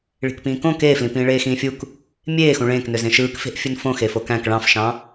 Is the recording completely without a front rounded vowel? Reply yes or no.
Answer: no